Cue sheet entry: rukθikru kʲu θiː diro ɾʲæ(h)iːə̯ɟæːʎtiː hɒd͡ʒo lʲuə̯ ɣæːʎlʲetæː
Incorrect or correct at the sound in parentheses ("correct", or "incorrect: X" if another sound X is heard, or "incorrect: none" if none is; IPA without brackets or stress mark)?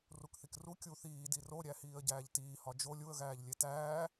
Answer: correct